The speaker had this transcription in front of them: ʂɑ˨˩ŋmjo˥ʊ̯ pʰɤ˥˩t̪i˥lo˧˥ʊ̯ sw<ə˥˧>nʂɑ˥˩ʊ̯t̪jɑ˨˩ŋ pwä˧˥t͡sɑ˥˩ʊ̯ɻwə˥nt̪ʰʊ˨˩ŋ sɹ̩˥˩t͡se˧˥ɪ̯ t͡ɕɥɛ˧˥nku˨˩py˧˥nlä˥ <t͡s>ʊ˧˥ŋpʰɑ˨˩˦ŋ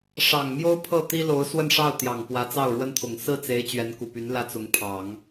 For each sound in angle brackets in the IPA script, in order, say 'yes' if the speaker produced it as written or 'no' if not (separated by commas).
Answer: yes, yes